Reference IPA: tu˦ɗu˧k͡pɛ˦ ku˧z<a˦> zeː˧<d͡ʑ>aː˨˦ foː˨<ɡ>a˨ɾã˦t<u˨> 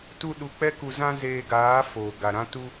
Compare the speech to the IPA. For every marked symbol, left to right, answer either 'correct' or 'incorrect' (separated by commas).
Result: incorrect, incorrect, correct, incorrect